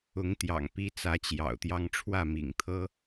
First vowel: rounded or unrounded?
rounded